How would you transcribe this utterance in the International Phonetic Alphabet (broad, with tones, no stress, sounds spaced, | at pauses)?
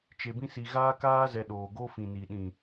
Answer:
t͡ʃ e˨ b ĩ˧ s i˨ ɣ aː˧ k aː˧ z ɛ˨ ɗ oː˨ ɡ o˦ f ĩ˨ n i˨ ɗ ĩ˨